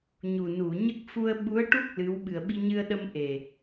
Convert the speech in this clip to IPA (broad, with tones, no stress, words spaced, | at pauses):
ɲu˨˩nu˨˩˨ ɲə˦˥k̚ fu˧ə̯ɓu˧˥ə̯ʈu˦˥k̚ lɨ˧˥w ɓɨ˨˩ə̯ɓi˧ɲɨ˧ə̯ɗə˧m ʔe˨˩